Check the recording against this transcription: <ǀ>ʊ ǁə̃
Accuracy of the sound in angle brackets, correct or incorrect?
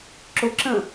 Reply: incorrect